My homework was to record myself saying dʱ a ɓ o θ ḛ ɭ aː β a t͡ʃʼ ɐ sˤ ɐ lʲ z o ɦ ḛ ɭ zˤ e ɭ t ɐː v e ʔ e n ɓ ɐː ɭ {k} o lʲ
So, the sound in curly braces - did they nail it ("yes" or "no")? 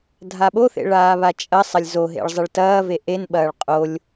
no